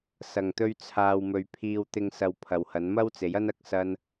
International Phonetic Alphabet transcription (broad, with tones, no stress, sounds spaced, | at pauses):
s ɐ˨˩ ŋ t̪ ɵ˧ ɥ t͡sʰ aː˨ w m ɵ˨ ɥ pʰ iː˨ w t̪ ɪ˨ ŋ s ɐ˧ w pʰ ɐ˨ w h ɐ˨˥ n m ɐ˥ w t͡s e˨˥ j ɐ˥ n ɐ˧ k̚ s ɐ˧ n